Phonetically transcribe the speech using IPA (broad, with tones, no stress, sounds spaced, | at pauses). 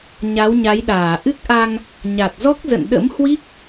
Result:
ɲ a˨˦ w ɲ a˨˦ j ɗ aː˧˩ ʔ ɨ˦˥ k̚ ʔ a˧ ŋ | ɲ a˨˩ t̚ z ɔ˦˥ k̚ z ə̰˧˨ n ɗ ə̰˧˥ m h w i˦˥ k̚